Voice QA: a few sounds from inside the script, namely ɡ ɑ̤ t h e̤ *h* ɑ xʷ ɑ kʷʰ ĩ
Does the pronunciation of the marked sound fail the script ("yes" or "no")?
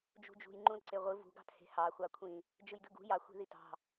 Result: no